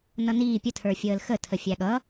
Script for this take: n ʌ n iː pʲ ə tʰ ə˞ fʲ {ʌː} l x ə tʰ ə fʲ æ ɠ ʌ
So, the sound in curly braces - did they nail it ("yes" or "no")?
no